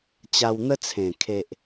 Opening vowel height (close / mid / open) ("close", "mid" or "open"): open